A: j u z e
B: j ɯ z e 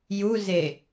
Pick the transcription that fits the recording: A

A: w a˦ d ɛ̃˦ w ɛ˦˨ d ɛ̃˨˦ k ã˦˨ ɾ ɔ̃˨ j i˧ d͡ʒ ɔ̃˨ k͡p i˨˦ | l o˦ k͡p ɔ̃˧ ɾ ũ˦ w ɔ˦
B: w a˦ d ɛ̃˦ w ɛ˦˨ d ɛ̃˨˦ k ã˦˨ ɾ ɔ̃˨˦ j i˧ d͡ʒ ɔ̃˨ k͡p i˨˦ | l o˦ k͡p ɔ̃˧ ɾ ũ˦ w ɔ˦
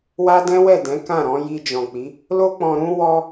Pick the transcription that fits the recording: B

